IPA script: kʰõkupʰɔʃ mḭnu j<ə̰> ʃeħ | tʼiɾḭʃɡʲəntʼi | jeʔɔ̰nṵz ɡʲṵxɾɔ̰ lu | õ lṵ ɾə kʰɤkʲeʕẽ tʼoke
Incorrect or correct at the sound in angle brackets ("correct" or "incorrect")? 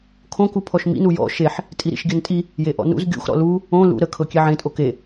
incorrect